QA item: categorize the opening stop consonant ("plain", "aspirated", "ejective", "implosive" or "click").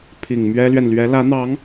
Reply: aspirated